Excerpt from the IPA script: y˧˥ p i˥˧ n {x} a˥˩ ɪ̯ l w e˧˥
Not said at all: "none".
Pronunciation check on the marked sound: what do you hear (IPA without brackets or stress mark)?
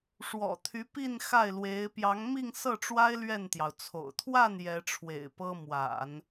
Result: x